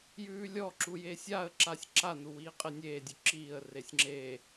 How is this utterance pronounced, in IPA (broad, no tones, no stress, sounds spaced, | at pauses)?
j ʉː lʲ ɔ ǁ u j e sʲ a ə̯ ǁ a sʲ ǁ a n u w iː qʼ e nʲ eː dʲ ʉ ǁ iː ə̯ r e sʲ ŋ͡ǁ e